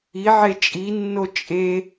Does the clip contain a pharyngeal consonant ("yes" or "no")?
yes